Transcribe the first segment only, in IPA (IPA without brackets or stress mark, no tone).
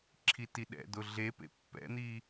ǁʰ